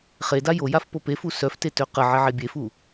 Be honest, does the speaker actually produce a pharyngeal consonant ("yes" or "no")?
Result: yes